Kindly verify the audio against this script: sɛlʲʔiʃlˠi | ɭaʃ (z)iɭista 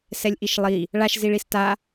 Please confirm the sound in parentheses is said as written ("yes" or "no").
yes